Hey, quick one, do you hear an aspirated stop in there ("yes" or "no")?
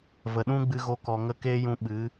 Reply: no